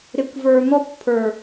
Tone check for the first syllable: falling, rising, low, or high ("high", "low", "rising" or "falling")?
low